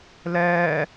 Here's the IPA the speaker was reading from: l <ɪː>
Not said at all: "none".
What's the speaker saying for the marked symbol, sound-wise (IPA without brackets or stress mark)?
ɛː